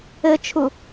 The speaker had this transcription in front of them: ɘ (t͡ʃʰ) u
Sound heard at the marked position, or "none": t͡ʃʰ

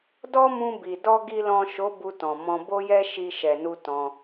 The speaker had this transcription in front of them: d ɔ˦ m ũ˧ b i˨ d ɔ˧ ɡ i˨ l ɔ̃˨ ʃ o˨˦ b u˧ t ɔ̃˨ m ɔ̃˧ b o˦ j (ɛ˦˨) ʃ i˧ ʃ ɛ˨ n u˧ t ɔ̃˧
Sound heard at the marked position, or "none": ɛ˦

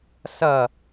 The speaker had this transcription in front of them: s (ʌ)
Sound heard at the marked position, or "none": ʌ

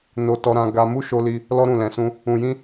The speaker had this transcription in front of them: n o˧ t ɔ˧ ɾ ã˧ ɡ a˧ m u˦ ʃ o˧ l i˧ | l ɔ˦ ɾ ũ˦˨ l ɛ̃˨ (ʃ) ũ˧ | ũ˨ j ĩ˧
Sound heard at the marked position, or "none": s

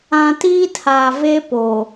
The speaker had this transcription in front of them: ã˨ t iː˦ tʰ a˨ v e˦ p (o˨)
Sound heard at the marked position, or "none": o˨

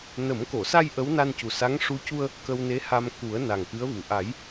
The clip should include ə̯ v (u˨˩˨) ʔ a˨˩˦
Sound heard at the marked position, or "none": u˨˩˨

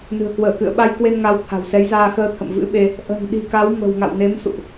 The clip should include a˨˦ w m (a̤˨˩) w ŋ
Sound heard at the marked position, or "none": ə̤˨˩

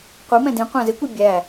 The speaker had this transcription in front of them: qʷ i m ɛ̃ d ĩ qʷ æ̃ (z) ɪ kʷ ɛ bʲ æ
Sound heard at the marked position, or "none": z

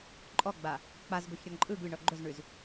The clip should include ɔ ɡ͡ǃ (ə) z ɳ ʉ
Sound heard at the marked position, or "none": ɵ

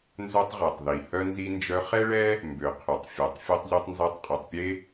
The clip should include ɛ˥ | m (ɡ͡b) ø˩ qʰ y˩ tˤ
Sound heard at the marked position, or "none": b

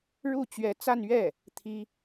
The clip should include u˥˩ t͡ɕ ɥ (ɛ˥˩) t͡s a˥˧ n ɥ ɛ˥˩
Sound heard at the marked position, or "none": ɛ˧˥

